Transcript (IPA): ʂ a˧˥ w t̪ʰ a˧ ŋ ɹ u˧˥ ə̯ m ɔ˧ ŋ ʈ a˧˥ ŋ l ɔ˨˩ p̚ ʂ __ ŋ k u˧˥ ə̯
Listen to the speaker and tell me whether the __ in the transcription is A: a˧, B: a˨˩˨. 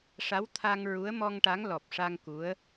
A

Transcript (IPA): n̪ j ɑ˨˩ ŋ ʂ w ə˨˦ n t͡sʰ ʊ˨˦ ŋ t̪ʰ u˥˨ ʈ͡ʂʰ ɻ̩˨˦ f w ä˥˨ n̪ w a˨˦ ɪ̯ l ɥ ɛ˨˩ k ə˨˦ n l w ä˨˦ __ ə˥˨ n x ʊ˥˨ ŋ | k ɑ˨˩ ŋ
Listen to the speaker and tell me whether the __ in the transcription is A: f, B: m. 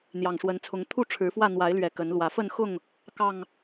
A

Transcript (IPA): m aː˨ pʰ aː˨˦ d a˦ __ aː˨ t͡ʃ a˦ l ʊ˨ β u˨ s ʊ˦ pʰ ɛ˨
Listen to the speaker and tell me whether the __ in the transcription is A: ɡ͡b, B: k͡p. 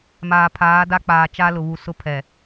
B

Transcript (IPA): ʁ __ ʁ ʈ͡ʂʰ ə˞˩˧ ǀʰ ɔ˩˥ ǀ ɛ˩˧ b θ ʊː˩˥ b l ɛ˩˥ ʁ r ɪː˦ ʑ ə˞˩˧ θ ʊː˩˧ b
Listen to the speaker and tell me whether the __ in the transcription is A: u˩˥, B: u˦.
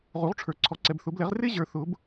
A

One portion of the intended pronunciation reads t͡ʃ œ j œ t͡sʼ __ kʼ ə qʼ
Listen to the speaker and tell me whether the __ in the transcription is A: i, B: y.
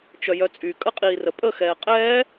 B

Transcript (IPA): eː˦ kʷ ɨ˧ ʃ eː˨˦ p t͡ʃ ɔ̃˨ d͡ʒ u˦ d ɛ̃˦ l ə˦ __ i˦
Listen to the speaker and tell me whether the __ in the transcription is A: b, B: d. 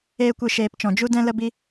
A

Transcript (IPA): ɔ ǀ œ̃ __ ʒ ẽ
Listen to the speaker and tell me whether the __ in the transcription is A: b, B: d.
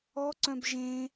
A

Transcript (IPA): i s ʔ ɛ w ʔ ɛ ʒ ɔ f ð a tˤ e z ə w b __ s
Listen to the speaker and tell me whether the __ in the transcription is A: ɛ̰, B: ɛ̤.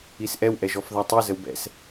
A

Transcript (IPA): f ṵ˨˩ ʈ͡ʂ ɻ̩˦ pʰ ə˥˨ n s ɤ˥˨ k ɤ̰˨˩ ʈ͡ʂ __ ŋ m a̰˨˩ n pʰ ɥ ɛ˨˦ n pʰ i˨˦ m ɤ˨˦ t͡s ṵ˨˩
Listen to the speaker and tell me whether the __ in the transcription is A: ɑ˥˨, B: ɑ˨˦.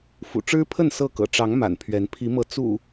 B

